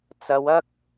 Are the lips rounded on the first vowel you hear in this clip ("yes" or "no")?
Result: no